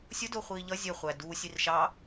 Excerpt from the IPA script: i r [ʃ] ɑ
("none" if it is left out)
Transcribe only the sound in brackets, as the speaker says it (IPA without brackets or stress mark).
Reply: ʃ